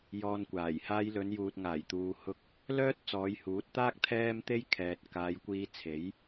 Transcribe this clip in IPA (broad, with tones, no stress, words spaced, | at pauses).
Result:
jɔː˧nkʷaː˨˩j haː˧jlɵ˨˧njuː˨t̚ŋaː˨˩j t̪uː˧hʊ˥k̚ | lœː˥t̚ t͡sɔː˨˧jhuː˨˥t̚t̪aː˥k̚ t̪ʰɛː˥mt̪e˥jkʰɛː˨t̚ kaː˨˧jkʷiː˧ t͡sʰe˨˥j